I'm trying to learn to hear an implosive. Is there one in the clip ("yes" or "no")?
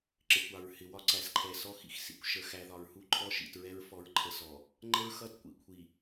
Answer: no